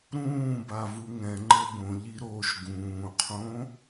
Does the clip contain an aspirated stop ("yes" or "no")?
yes